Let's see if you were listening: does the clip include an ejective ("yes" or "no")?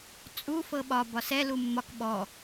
yes